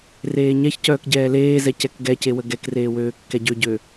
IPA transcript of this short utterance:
reːɲɛç cœːkɟɛːleːzɛ cɛkɡɛcewə ɡɛkreːwøː kːɛɟøɟø

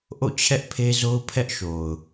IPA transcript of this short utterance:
ʔo̰˦˨t͡ɕʰɛ˦ʔ pʰe˦zo˦ʊ̯ pʰɛ˦ʔʃo˨ʊ̯

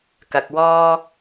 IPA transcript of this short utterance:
kɐ˨k̚wɔː˥

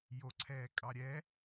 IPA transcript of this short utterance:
joǀʰɛːkʼɑɾʲɛ

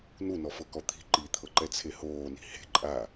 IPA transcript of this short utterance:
nunɔfɤkɔ t̪ʰi̤ ǃit̪ʰɤǃɛt͡sʰe hoːni̤ he̤ ǃʼa

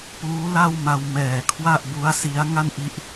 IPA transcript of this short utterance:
puː˦˥la˥˩wma˧w mɛː˨˩kʰwa˥˩ʔbu˦˥a̯ si˦˥a̯ŋa˥˩nʔi˦˥ʔ

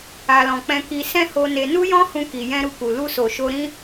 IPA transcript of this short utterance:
a˨lɔ̃˨ k͡pɛ̃˧ki˧ sɛ̃˦ho˧ ne˧ nu˦jɔ̃˦hũ˧ki˨ jɛ̃˧ɾu˧ku˨ lu˧so˨ʃo˧ ɾĩ˦

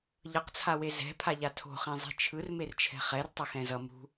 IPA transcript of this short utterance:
ʎʌqt͡sʰawe zɛ̤pʰaʎa tʰo̤χĩ zˤi̤t͡ʃʰɯr mert͡ʃʰɛ̤χɛrtˤʌ xɛ̃zʌ mṳ

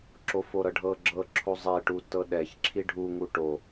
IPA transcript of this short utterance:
ǁofoɾɤɖʱɤ ɡ͡ǁɤ ǁʰozˤeʈu tɤɗɛç ǁʰiɖʱuŋu ʈo

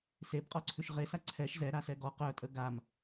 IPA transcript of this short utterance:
sebqʼɔǀʰʉʃ ʁesa ǀʰɛʃ zɛɾasɛ ɡɔ qœtʼə ɡam

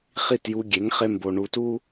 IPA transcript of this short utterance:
χi˥˩tju˧ɡʲe˩˥ŋ χe˥mbo˧ ɳu˧tu˥

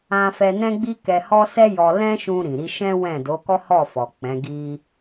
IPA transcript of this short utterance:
ã˦ fɛ˧ nɛ̃˦ɡ͡bi˦ kɛ˧hɔ˦ sɛ˦jɔ˧ lɛ̃˦ʃũ˧ɾĩ˨ɾi˧ ʃɛ̃˦wɛ̃˦˨ do˨˦kɔ˦hɔ˦˨fɔ˨ k͡pɛ̃˨˦ɡi˦

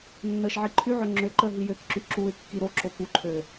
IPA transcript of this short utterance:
nːəːʃʕiǃʰyʕø ŋ͡ǁøǃəː ɦijøkǁy ǁuɪ̯ kːiɾoǁo kuǃʰøː

